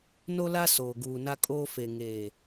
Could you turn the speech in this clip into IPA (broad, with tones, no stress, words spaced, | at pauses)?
no˦la˦ soː˨ɡuː˨na˦kʼoː˦ fe˨ ŋeː˨